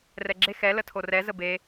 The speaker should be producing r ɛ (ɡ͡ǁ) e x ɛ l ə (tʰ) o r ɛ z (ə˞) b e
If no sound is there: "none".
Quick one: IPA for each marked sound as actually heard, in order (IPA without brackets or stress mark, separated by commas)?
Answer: ɡ͡ǁ, tʰ, ə